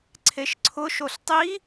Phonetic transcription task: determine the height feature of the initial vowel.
mid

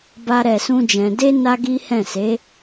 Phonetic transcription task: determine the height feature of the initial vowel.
low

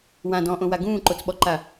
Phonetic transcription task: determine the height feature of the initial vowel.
low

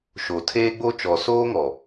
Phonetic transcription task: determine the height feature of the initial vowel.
mid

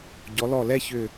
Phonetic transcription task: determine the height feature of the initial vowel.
mid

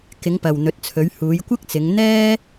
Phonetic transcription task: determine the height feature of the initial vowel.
high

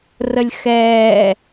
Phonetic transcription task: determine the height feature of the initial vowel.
mid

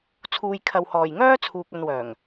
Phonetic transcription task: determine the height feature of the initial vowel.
high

